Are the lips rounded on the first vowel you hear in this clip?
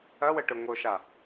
no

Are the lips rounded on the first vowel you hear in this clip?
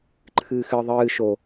no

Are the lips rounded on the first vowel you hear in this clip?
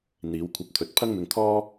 no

